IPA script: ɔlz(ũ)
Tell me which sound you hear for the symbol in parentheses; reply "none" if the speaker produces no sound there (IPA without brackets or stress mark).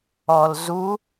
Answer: u